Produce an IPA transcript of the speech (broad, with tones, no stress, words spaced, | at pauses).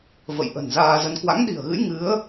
və̰˧˨jʔə̤˨˩n zaː˧zə˧n kwa̰˧˥ŋɗi̤˨˩ə̯ɣɨ̰˧˥j ŋɨ˨˦ə̯